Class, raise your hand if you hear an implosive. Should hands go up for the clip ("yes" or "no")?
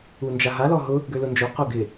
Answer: no